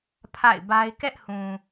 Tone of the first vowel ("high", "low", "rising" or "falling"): falling